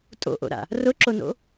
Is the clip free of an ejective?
no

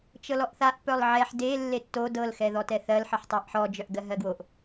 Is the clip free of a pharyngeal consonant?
no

